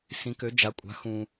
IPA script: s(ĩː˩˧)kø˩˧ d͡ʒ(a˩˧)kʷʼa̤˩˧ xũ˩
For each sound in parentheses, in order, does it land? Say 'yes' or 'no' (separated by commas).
no, yes